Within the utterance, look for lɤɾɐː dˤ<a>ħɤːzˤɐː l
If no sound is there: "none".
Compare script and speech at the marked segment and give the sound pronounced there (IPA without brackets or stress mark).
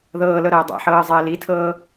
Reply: a̰